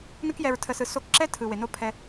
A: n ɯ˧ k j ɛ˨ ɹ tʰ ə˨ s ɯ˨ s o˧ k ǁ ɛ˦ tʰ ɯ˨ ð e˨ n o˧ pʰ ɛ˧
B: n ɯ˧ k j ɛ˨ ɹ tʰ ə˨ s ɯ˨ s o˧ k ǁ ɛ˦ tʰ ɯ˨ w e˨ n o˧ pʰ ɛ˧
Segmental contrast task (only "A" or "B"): B